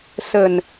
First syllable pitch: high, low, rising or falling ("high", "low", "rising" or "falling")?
low